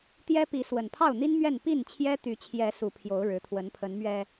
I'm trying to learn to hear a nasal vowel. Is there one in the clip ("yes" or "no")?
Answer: no